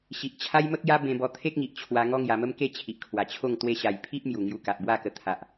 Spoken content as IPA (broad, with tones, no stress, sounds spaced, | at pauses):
ɕ i˨ ʔ t͡ɕʰ a˦ j m ə˦ k̚ j a˦ b ẽ˧ b ɔ˧ t̪ʰ e˦ k̚ ŋ i˨ ʔ t͡ɕʰ w a˧ ŋ ɔ˦ ŋ j a˧ m ə˦ m k e˥˧ t͡ɕʰ i˨ ʔ kʰ w a˨˩ t͡ɕʰ o˥˧ ŋ t̪ w e˧ ɕ a˨˩ j pʰ i˦ ʔ m j u˨˩ ŋ j u˧ k a˨ ʔ b w a˥˧ k ə˧ t̪ʰ a˨ ʔ